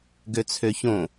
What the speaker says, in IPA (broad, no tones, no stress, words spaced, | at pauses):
ɡøt͡sʰøçõ